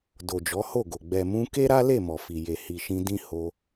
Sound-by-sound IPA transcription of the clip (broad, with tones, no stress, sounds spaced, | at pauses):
d o˨ d͡ʒ ɔ˨˦ h o˦˨ ɡ o˨ ɡ͡b ɛ˨ m ũ˧ k e˦ ɾ a˦ l e˦˨ m ɔ˨ f i˨ j e˨ h i˨ ʃ ĩ˧ d ĩ˦ h o˧